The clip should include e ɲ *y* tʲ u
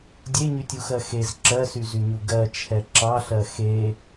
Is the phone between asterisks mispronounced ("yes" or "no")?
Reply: no